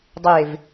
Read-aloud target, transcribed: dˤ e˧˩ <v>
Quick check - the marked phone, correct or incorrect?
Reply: correct